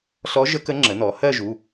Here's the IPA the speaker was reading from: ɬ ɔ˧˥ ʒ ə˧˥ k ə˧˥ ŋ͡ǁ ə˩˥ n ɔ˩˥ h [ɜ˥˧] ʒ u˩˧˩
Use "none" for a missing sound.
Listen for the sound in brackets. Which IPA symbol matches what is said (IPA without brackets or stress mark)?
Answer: ɜ˥˧